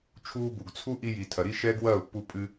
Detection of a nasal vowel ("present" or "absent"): absent